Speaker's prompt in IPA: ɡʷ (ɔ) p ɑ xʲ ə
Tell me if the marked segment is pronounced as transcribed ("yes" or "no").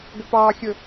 no